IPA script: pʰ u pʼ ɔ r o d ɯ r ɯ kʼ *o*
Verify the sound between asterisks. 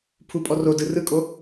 correct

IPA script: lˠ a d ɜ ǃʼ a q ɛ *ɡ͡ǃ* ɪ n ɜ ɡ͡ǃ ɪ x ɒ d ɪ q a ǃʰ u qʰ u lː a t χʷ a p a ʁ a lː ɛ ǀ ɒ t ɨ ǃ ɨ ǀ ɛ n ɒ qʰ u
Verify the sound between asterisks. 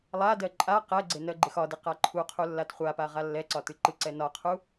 incorrect: ɡ͡ǀ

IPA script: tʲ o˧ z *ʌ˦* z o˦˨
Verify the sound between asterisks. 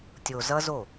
correct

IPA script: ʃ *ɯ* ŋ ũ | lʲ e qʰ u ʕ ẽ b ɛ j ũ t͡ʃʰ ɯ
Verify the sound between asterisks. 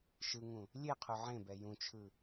correct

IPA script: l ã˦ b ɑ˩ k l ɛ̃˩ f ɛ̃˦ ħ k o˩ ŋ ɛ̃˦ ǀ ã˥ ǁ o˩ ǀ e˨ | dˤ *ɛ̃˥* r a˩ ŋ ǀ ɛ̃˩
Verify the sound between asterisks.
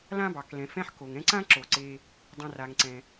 incorrect: ɛ̃˨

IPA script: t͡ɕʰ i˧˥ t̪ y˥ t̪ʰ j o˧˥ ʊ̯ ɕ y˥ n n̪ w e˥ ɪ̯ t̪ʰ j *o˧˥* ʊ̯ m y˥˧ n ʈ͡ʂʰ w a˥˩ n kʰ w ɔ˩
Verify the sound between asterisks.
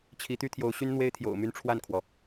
incorrect: o̰˨˩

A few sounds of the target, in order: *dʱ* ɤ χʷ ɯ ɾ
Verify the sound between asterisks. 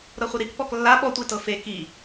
incorrect: ɾ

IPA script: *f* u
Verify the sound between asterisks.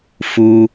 correct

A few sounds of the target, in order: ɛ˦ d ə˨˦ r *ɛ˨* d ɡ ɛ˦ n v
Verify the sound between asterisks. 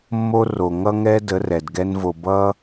correct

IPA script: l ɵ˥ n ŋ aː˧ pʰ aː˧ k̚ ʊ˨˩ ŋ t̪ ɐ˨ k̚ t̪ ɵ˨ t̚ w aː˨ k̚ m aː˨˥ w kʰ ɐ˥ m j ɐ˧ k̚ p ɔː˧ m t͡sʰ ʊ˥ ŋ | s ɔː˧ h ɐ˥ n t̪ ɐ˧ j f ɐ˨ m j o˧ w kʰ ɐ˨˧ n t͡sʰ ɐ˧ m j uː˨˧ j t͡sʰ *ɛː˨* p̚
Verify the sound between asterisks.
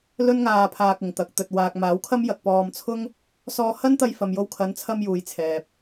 correct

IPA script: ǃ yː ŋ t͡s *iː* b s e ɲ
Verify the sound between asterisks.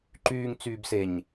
incorrect: yː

